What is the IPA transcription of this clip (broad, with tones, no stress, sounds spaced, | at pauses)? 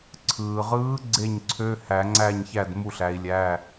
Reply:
ǀʰ ɯː˩ ʁ ɯː˨˦ ɡ͡ǀ e˥˩ ɲ ǀʰ ø˧˥˧ h æ˨˩˦ ŋ͡ǀ æ˥˩ ɲ ç æ˥˩ d m u˥˩ ɬ æ˨˦ i̯ lʲ æ˧˥˧